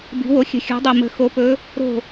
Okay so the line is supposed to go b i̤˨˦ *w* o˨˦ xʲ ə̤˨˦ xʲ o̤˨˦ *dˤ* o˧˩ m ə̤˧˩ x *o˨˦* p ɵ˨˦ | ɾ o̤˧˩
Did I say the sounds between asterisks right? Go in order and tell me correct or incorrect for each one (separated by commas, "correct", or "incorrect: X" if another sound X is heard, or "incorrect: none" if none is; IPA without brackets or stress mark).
correct, correct, correct